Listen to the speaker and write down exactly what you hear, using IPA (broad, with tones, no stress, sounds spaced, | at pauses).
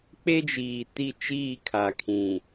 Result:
k͡p e˦ d͡ʒ iː˨ t i˦˨ t͡ʃ iː˦˨ kʰ a˨ kʰ ĩ˨